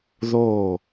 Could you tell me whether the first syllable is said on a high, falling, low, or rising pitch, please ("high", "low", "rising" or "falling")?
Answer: falling